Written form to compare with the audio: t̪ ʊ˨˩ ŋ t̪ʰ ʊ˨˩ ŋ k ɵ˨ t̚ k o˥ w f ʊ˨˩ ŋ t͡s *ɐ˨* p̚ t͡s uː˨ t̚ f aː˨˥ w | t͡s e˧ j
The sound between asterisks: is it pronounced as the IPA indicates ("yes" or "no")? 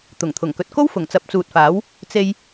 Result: no